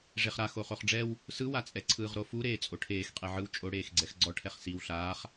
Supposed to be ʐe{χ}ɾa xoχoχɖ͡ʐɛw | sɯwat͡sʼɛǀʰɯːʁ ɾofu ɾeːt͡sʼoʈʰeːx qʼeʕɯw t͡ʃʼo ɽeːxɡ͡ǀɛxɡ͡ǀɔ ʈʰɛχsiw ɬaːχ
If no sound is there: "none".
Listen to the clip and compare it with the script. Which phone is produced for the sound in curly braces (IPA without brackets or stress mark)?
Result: χ